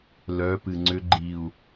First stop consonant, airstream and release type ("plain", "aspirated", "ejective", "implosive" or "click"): plain